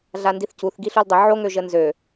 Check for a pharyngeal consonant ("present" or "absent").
present